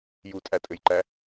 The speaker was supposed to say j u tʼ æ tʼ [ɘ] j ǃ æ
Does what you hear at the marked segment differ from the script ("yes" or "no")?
no